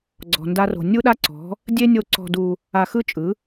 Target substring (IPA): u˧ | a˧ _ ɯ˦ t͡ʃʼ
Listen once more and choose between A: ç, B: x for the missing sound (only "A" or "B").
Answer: B